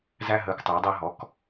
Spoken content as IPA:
z æ˦ ɦ əː˩˥ k tˤ əː˩˥ dˤ ɜ˦ ɦ ɔ˩˥ k

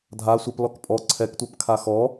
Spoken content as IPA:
dʱ a sʷ ɛ p l ɔ k pʼ ɔ ǀʰ ɛ k tʷ ɜ p kʰ a x ɔ

